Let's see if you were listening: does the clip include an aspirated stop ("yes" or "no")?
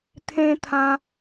yes